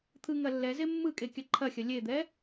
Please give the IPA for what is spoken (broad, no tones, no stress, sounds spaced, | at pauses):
t̪ʰ ɯ ŋ ɐ lː ɛ z e mː ɯ kʼ e kʲ ɐ ǃʰ ɐ xʲ ɐ lʲ e d̪ ɛ